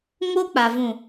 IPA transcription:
ŋ o˦ k͡p a˨ v ũ˨

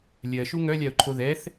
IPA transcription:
lʲ ɜ ʃ u ŋ œ lʲ a ʊ̯ ǃʰ o ð ɛ θ

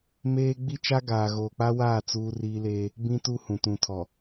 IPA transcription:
m eː˦ ɡ͡b i˦ t͡ʃ a˦ ɡ aː˨ ɣ oː˨ k͡p a˦ w aː˦˨ t͡s uː˦ r iː˦ l eː˦ | b ĩ˦ t u˦ h ũ˨ t ũ˨ tʰ ɔ˨

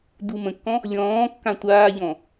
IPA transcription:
d u m ə̃ kː ɔ̃ | lʲ ɔ̃ː kː ã tʷ aː ʎ ɔ̃

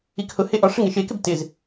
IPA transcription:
i k h ʊ h e ʔ ɒ ʂ ə ŋ e ʃ e k ɪ b t ɪ z

